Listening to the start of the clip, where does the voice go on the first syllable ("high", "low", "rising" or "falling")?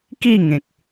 falling